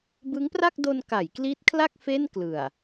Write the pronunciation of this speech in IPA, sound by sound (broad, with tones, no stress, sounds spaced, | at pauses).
b ɯ˦˥ ŋ p r a˥˩ k̚ d o˧ n k a˩˦ j k l i˦˥ t̚ kʰ l a˥˩ k̚ f e˥˩ n k l ɯ˨˩ a̯